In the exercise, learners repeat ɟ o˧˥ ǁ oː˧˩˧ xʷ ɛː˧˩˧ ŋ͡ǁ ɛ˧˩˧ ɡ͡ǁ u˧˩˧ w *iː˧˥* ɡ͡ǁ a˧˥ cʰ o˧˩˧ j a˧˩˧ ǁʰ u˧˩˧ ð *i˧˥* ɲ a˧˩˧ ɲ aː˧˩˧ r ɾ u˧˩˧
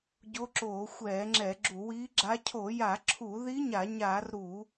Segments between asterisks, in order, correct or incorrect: correct, correct

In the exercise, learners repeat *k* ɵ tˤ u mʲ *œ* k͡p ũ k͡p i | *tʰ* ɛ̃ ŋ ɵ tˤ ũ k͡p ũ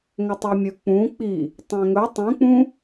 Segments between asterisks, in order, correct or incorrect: incorrect: ŋ, incorrect: ɵ, incorrect: tˤ

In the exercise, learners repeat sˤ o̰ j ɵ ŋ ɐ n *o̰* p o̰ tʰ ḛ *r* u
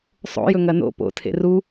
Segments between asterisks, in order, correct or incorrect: correct, correct

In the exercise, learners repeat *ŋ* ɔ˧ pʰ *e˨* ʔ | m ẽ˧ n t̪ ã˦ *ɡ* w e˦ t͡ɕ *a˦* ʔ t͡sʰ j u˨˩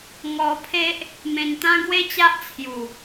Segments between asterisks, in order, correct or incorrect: correct, incorrect: e˦, correct, correct

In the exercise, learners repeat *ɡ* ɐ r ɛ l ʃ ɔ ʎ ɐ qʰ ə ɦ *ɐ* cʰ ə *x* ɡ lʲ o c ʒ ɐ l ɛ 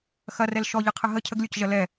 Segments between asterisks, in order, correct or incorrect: incorrect: x, incorrect: ə, incorrect: none

